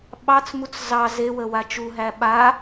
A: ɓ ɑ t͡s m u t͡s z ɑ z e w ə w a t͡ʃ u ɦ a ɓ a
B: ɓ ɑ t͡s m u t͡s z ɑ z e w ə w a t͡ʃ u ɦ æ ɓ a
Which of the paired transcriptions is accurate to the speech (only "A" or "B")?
B